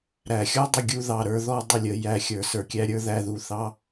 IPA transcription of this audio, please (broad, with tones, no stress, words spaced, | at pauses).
ɾæ˨xʲɔ˦dˤə˧ɡʲu˧ ðɑ˨ɾə˞˧ðɔ˧ dˤə˦˨lʲə˧jæ˧ xʲə˞˨sə˞˨kʲæ˦ɾʲə˞˦ ðæ˦ðu˧ θɑ˦